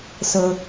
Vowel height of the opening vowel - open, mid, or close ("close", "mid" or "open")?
mid